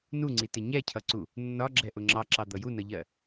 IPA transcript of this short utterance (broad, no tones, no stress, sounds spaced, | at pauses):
n u ŋ͡ǀ i t ɪ ɲ ɛ cʰ ʌ ǀ u | nː ɒ ɡ͡ǁ ɛ ʔ ʊ ŋ͡ǁ ɑ ǁ ɑ d̪ ʌ j u n ʌ ʎ ɜ